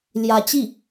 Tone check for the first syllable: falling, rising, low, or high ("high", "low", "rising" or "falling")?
rising